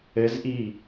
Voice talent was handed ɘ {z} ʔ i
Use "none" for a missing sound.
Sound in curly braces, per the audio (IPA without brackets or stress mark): z